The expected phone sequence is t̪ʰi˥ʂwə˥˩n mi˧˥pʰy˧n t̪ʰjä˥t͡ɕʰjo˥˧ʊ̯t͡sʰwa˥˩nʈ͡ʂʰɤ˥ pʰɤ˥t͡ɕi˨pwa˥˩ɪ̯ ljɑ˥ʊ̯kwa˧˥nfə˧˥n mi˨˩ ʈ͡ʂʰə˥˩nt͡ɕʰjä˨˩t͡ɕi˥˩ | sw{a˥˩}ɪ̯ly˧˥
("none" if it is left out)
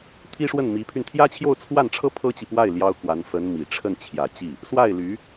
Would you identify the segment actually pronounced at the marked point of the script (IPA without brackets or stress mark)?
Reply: a˥˩